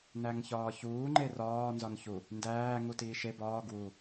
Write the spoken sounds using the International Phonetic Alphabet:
n æ ŋ ç ɒː ç uː ŋ͡ǃ e r ɒː n z ɒ n ç u | n d æː ŋ u t iː ʃ e b ɒː ɡ w u

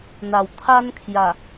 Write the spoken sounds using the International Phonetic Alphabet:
n̪ a˨˩ w t̪ʰ a˦ n kʰ j a˨˩

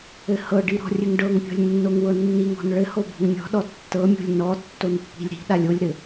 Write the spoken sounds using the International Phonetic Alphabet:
ɘ h ɤ ɖ i ɾ ɔ̤ rʲ ɘ ŋ ɖ ɤ ŋ pʲ ɔ̤ lʲ nː o ŋ w ɤ nː i ŋ ɔ̤ n ɭ ɘ h o b o̤ ŋ mʲ ɔ̤ ɗ ɔ tː ɤ mʲ o̤ lʲ n ɔ tː o n pː i̤ lʲ ɾ i̤ ɗ a lʲ o lʲ ɾ ɘ

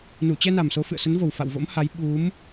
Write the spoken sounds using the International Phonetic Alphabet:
n u˧˩ t͡ɕ ɛ˧ n a˨˩ m s o˨˦ f ɨ̰˧˨ ə̯ s ə˨˦ n v o˨˩ w f a̰˧˨ w v o̰˧˥ m h a˨˦ j ɓ u˨˦ m

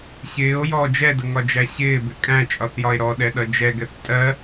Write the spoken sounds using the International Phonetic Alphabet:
ɕ ɪː o̯ j ɔ d͡ʒ ɛ d ə ŋ ɒ d͡ʒ æ ɕ ɪː b ɪ kʼ æ̃ t͡ʃʼ ɒ θ j ɒ e̯ ɾ ɔ ɗ ɛ ɗ ʌ d͡ʒ ɛ ɡ ɛ θ tʼ ɜ

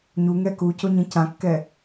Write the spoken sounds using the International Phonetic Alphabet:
ɲ u ŋ ɛ k u c o ɲ ĩ c ã kː ɛ

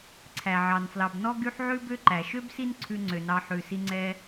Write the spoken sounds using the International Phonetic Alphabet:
ǀʰ æ˩ ʕ ɑ˩ n f l ɑ˨ b n ɔ˥ ɡ y˥ ħ ʕ ʉ˥ b ø˥ ǃ æ˩ ʃ ø˥ b s i˦ n ǀʰ ʉ˨ ŋ͡ǀ ø˩ n ɑ˨ ħ ʉ˩ s i˨ ŋ͡ǀ ɛ˨

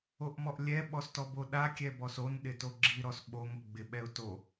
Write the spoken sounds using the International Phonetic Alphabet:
o ʔ m ɔ ʔ lʲ ɛ ɓ ɔ s t ɔ b o ɗ a kʲ ɛ b ɔ s o n ɗ ɪ t o ɡ͡ǁ i ɾ ɔ s ɓ o ŋ o ɡ͡b ɪ ɓ ɛ ʊ̯ t o

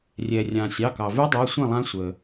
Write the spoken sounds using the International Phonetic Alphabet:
rʲ ɛ˩ rʲ ã˩ sʲ ɑ˩˧˩ k ɑ˩ v ʉ˦˥ dˤ ɛ˩˧˩ sʷ ĩ˥˩ lˠ ã˦˥ sʷ ə˩

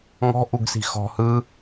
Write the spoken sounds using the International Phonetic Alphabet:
ŋ ɔ̤ ʔ u ɡ s i̤ x ɔ̤ h ɯ

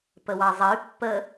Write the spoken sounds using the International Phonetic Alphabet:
p ə w ɑ zˤ ə y̯ pː ə

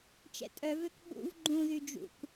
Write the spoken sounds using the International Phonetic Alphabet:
t͡ʃ ɛ̰ tʼ œ v ø k ɓ ṵ v ɡ͡ǃ ũ ð y d͡ʒ ṵ k

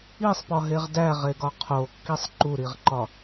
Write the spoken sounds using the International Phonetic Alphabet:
i sˤ p ɒ ɦ e ʁ d æ ʁ e ɡ ɒ qʰ o kː i sˤ ǃ u ɾ i ʁ ǃ ɒ

